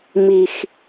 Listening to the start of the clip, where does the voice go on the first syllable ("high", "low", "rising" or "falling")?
low